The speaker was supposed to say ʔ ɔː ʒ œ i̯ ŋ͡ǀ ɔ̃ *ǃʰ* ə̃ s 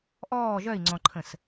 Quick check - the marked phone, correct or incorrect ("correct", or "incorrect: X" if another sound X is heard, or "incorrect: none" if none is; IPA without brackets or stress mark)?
correct